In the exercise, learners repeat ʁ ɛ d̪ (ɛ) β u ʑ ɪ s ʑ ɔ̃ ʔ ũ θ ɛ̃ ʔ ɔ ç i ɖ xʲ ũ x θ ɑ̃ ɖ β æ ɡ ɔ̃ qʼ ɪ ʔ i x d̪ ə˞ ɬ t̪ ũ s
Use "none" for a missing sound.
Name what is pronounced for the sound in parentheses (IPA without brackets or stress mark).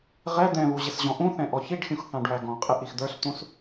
ɛ̃